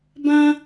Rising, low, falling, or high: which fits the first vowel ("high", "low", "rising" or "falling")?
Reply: high